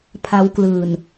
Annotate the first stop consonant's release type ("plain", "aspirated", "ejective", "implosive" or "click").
aspirated